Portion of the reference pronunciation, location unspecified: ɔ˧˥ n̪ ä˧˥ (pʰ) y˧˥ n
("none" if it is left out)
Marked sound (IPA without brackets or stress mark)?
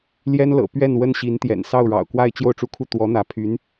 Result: pʰ